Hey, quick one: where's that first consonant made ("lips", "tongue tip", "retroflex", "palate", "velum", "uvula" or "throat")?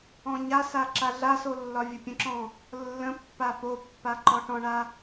palate